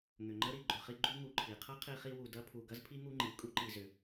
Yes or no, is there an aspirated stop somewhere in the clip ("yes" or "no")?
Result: yes